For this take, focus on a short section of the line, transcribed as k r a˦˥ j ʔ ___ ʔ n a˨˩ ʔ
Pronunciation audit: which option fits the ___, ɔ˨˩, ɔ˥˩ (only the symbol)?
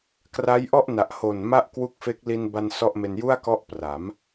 ɔ˥˩